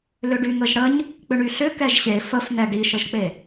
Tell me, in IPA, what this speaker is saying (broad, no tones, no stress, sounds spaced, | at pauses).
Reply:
l ʏ ɖ y ŋ ə ʒ ɽ ə ɲ | k͡p ʏ ɳ y ɬ ʏ k ɛ ʒ ɕ e f ə f n̪ ɛ ɖ i ʃ ə ʒ k͡p e